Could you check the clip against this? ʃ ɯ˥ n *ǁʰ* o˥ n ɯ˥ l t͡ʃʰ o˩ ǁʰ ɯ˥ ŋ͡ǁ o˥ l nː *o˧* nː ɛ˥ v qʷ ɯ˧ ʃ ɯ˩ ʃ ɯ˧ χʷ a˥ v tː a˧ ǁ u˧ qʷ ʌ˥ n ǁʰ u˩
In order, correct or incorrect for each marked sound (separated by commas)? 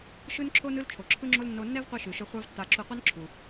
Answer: correct, correct